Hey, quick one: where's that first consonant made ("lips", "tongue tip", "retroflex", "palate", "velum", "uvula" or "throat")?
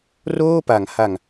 tongue tip